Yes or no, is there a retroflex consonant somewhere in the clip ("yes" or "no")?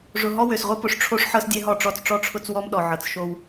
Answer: yes